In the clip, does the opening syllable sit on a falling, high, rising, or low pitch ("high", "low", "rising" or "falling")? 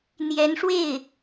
rising